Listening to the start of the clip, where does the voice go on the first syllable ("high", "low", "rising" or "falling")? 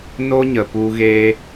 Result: high